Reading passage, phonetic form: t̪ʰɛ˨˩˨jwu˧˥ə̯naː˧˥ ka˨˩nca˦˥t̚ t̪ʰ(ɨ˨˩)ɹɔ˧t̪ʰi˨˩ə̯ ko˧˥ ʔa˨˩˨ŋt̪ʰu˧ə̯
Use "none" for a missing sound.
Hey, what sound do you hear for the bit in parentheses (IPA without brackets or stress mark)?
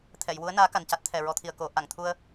ɛ˨˩